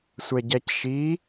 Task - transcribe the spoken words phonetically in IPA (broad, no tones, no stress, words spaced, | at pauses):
sʷɛɟæcʃi